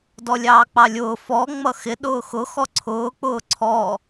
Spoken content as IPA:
d ɔ lʲ ɑː k͡p ɑ lʲ ʊː f ɔ ŋ͡m ʌ x ɪ ɗ ʊː x ʊ x ɔ ǀʰ ʊː k͡p ʊː ǀʰ ɔ

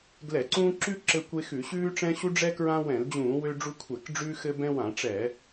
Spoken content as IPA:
ɡ l ɛ˧˩˧ ǀ ũː˦ ǁ ʉ˦ ǁ ɘ˦ kʷ e˦ x ʉ˧˩˧ ɕ ʉː˦ ʈ͡ʂ ɛ̃˦ ɕ u˦ ɖ͡ʐ ɛ˦ k ɹ ã˦ w ɛ̃˧˩˧ l d͡ʑ ũː˧˩˧ w ø˦ ɖ͡ʐ u˦ kʷʰ ɛ˧˩˧ k ɖ͡ʐ ʉː˦ x ɘ˦ b ɛ̃˦ w ã˧˩˧ ʈ͡ʂ ɛ˧˩˧

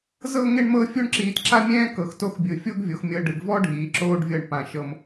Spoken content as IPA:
z ɤ˥˧ ŋ e˥˧ ɳ m ɤ˥˧ fʲ o˥ ɳ ǁ iː˧ t ǁ a˥ mʲ ɛ̃ː˥ k ɤ˧˩ x t o˥ x bʲ ɯ˧˩ fʲ o˥ ɡ vʲ o˩˧ x mʲ ɤ˧ ɖ ɯ˩˧ ɡ v ɔ˥ ɖʱ iː˩˧ ǁ oː˧ ɖ vʲ ɤ˧˩ ɳ p ã˧˩ ʃ ɤ˧ m

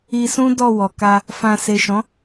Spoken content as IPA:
i˧ s ũ˦ d ɔ˦˨ w ɔ˨ k a˧ | f ã˧ s e˨ ʃ ɔ̃˨˦

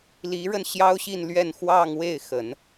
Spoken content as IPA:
l i˧˥ ɻ ə˧ n ɕ j ɑ˥ ʊ̯ ɕ i˥˧ n l ɥ ɛ˥˧ n x w ɑ˥˧ ŋ w e˥˩ ɪ̯ x ə˨˩˦ n

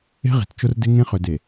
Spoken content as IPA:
e̤˦ ʁ i̤˨ t t͡ʃ ʊ˦ r d ɪ˦ ŋ ẽ˦ χ ø˨ d e˨

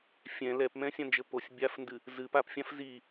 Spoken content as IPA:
fʲ ɛ̃ l ɛ p m ɛ̃ sʲ ã n d͡ʒ ɘ p o sʲ bʲ a f n d ɨ | z ɨ p a p fʲ ã f z i

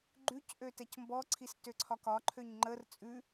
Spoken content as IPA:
ɡ͡ǃ ʉ c ʔ ø t ɛ c m b ɔ ǀʰ i s t ø ǀʰ ɒ k ɒ ǃʰ ø ɲ ŋ͡ǃ ə r t͡sʼ ʉ

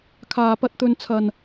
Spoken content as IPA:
kʰ aː˧ p ɐ˧ t̚ t̪ ɵ˧ n t͡sʰ ɐ˧ n

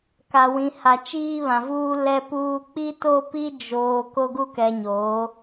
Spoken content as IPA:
k a˨ w ĩ˨ h a˨ t͡ʃ iː˦ β ã˨ v uː˦ l ɛ˦ p uː˦ k͡p i˦ t o˦ p i˦ d͡ʒ oː˨ k o˦ ɡ u˦ k ɛ˨ ɲ oː˨˦

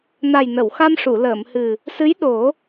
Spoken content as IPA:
n a˨˩ j n ə˨˩˨ w x a˧ m ʂ u˨˩˨ l əː˨˩˨ m h ɨ˨˩ | s ɨ˧˥ j ɗ o˨˩˦

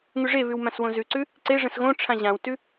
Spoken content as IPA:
ŋ ʉ ʐ e β ʉ w m ã s w õ z ʉ ǀ ʉ | ǀ e ʐ ə̃ s ɣ õ ʈ͡ʂʰ ã ʑ ã w t ʉ

